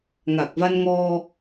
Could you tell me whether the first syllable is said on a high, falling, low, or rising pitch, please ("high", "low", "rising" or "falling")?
low